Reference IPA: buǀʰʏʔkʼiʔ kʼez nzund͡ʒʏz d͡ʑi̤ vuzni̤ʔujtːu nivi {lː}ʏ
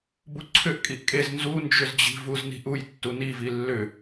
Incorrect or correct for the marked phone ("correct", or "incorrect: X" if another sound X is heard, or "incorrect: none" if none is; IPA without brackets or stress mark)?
correct